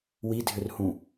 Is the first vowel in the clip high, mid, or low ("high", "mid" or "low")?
high